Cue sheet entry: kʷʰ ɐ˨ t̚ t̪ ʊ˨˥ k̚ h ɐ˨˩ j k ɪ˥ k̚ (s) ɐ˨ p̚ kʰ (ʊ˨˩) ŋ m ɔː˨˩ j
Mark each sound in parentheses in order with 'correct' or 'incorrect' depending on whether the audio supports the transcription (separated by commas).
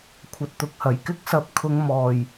correct, incorrect